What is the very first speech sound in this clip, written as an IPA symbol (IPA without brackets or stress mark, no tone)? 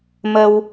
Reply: m